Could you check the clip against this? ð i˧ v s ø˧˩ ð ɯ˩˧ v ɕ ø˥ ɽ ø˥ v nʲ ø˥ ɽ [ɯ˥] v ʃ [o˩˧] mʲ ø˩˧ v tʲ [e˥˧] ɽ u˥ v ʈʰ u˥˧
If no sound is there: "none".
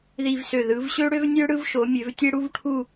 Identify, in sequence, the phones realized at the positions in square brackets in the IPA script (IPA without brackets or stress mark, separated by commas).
ɯ˥˧, o˩˧, e˥